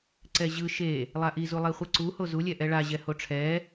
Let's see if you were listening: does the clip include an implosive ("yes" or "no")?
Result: no